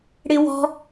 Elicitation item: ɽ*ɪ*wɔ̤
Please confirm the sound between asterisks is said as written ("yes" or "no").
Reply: yes